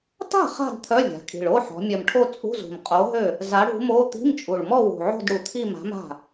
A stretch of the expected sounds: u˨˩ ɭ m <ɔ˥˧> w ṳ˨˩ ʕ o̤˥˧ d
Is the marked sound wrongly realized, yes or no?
no